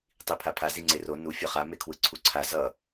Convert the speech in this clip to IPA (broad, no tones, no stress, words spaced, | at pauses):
tˤipʰapʰa ziŋ͡ǀero nu fʲʌχa mekʰwɯǀʰuǀʰa zʌ